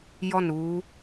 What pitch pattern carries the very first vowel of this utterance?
falling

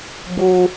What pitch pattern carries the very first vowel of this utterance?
high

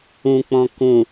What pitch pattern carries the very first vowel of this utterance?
low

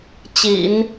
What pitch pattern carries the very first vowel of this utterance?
low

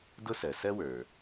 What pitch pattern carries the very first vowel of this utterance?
high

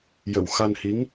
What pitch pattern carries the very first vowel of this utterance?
low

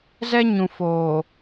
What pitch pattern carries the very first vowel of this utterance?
high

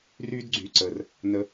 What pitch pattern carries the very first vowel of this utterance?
high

